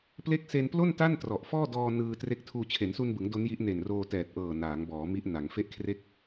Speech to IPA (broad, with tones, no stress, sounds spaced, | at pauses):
p l e˦˥ k̚ s e˧ n p l o˥˩ n t a˥˩ n t r ɔ˨˩ ʔ f ɔː˥˩ d ɔː˧ n ɯː˧ t r e˦˥ k̚ tʰ uː˧ t͡ɕʰ e˩˦ n s u˧ n b ɯ˩˦ ŋ d o˦˥ n j i˦˥ ʔ n e˨˩ n r oː˧ t ɛː˨˩ t̚ ʔ ɤː˨˩ n aː˩˦ ŋ b ɔː˩˦ m i˦˥ ʔ n a˩˦ ŋ f e˦˥ ʔ kʰ r e˦˥ k̚